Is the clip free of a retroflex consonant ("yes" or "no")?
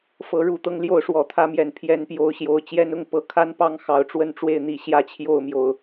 no